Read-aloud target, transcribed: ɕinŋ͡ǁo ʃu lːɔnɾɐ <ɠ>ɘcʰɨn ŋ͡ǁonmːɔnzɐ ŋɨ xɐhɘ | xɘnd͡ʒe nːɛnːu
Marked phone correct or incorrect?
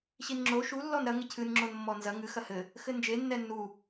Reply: incorrect